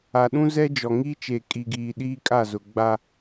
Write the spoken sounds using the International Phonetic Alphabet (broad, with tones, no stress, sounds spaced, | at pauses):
a˨ ɗ ũ˦ z ɛ˦ d͡ʒ ɔ˨ ŋ iː˦ t͡ʃ eː˨ kʼ i˨ ɡ iː˨ ɗ iː˦ kʼ a˦˨ z ʊ˨ ɡ͡b a˦